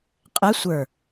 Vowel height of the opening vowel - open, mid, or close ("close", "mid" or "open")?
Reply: mid